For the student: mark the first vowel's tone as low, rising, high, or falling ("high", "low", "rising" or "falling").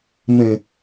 low